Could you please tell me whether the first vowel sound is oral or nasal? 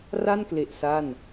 oral